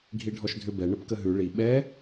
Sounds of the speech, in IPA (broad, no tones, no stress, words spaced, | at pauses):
ɡʱiɖʱɔʃdʱʏ bɛ ɳəpkəɦʉ ɭi ɓɛ